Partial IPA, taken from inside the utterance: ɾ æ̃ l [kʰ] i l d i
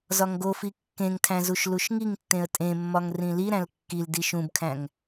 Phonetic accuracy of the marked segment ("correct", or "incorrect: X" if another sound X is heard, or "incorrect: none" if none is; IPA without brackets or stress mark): incorrect: kː